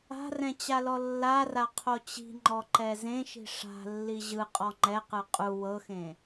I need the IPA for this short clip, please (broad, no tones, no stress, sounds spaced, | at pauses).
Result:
a̤ r ɛ̃ t͡ɕ a l ɔ lː a r a qʰ o t͡ɕ i̤ ŋ͡ǃ ɔ ǃ ɛ z ẽ ʃ i̤ ʂ a̤ lː i ʑ ɯ qʼ ɔ ŋ͡ǃ ɛ q ɯ qʼ u w ɤ x ẽ